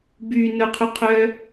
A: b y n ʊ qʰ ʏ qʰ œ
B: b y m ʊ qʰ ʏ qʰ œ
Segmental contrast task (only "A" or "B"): A